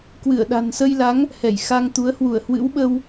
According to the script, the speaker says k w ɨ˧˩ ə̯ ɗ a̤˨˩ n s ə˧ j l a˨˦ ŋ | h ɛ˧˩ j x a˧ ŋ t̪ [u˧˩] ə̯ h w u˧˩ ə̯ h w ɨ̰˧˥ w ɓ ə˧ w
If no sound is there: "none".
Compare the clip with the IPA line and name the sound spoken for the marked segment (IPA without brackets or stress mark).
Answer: u˨˦